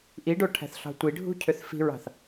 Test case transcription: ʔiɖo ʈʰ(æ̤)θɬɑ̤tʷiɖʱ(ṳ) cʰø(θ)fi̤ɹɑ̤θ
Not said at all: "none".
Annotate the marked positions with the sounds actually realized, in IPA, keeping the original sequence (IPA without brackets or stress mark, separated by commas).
æ̤, ṳ, θ